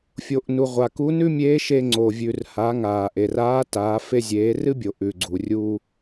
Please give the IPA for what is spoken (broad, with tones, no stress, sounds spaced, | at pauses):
fʲ o˩ ʔ n u˩ ʁʷ a˩ k u˧˥ n ʉ˥ mʲ eː˧˥ ʃ e˧ ŋ͡ǀ o˩ vʲ ʉ˩ r h a˩˧ ŋ aː˩ ʔ e˩ r aː˧˥ t aː˩˧ f e˧ zʲ eː˩˧ r ɨ˥ bʲ o˩ ʔ ʉ˩ ɡ͡ǀ u˩ rʲ uː˧